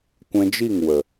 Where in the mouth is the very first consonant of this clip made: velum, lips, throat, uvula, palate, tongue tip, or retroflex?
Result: velum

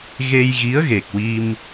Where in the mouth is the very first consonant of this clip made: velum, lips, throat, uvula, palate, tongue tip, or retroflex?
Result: velum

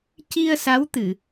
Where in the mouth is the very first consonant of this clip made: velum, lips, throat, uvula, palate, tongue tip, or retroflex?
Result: palate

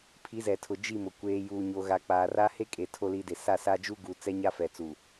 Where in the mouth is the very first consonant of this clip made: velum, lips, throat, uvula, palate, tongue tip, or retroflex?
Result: lips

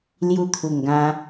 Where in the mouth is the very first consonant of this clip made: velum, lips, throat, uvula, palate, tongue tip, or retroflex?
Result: tongue tip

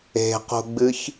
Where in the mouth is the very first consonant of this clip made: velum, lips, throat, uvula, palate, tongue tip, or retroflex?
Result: uvula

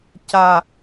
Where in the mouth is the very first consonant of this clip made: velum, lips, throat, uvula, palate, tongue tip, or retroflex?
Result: palate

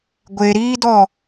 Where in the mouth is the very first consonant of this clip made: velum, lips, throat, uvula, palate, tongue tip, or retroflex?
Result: velum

